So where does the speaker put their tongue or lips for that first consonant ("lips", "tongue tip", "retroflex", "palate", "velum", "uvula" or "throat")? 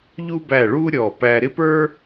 palate